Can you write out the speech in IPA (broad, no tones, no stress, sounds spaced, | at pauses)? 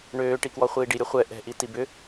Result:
ɳ øː ʈ i k w ɔ χʷ iː ɖ i ɾʲ o χʷ ɛ ʔ ɛ̤ ʔ i t i b ʏ